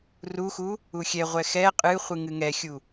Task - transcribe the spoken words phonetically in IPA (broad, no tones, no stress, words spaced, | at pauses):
ruxu | uxʲɛʁʷɛ xɛ qʼɨ χʷɨŋɨŋɛxʲu